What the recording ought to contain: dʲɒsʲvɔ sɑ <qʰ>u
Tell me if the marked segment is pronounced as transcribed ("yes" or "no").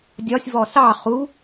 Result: no